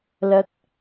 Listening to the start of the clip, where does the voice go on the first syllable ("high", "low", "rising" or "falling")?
rising